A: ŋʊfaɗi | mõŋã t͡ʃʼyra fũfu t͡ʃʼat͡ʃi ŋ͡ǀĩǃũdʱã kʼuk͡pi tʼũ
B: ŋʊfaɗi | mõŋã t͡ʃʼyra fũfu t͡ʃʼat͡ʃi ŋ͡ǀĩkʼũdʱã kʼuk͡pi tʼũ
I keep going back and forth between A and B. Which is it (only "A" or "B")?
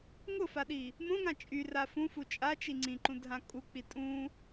A